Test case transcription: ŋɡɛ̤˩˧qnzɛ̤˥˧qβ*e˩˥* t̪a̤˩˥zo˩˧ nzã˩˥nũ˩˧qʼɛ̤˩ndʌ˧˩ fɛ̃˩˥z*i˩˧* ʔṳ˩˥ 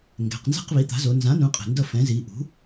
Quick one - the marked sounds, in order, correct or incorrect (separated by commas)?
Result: incorrect, correct